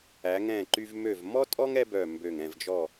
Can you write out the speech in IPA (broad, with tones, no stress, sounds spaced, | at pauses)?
æ˩˧ ŋ ɛ̃ː˧˩ ǃ y˧ v m ø˧˩ v m ɔ˥ tʼ ɔ˥ ŋ ɛ˥ b œ˧˩ m b ø˧˩ ŋ ɛ̃˧˩ v d͡ʒ ɔ˧˩